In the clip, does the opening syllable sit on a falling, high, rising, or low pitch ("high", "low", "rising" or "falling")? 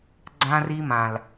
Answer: high